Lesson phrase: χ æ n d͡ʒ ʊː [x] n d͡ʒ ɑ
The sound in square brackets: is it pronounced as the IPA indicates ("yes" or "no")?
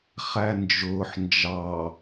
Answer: no